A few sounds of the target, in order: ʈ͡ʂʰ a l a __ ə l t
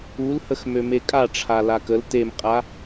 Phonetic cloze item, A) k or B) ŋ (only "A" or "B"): A